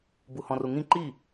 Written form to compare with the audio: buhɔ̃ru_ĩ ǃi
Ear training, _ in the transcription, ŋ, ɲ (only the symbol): ŋ